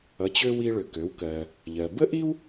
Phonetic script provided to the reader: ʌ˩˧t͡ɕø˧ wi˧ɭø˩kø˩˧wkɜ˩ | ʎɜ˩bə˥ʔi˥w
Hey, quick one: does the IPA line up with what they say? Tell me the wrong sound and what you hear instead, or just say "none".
none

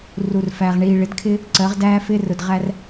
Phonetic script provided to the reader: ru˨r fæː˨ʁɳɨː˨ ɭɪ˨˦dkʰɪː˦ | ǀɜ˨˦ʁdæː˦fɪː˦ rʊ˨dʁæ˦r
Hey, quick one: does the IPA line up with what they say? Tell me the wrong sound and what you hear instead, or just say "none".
ɨː˨ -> iː˨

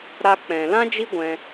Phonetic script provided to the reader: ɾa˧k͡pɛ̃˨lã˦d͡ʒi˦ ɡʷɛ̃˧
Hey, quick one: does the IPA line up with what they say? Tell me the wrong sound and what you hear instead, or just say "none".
none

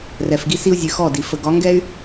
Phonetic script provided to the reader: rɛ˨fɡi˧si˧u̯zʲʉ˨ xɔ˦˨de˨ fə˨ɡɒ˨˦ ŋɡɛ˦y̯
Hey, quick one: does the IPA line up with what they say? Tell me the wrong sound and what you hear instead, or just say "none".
e˨ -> i˨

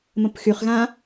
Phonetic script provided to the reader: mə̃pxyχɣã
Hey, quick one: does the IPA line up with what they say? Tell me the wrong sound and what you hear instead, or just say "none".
none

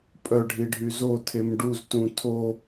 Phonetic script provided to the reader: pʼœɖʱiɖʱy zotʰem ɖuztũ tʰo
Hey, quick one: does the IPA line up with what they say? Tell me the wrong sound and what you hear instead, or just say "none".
none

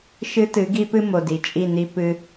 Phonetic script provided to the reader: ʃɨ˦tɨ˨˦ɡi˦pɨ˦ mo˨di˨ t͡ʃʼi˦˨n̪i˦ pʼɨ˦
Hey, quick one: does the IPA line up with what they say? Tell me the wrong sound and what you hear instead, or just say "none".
pʼ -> p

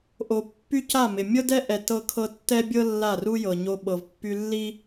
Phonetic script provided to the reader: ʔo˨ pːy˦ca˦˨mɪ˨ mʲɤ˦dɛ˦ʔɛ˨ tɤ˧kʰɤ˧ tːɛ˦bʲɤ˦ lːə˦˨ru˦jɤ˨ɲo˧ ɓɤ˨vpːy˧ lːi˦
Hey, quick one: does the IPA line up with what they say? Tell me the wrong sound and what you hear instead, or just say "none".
ə˦˨ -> a˦˨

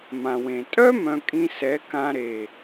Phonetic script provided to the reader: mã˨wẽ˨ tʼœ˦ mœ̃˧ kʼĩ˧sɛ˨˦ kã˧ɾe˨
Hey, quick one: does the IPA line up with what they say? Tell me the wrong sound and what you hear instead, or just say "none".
none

